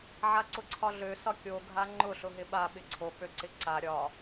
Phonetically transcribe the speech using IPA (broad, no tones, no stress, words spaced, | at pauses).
ʕaǀʊǀʰɒɮø sɒkʲo ɡʱaŋ͡ǃʊ ɬʊɦɪɓa ɓɪǀʰo k͡pøǀɪǀa ɾʲɒ